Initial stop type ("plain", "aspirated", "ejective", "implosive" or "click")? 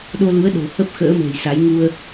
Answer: implosive